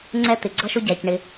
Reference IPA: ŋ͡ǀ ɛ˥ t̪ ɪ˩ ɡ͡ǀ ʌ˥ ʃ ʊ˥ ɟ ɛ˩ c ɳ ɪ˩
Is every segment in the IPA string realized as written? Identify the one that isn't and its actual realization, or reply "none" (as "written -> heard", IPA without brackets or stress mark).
none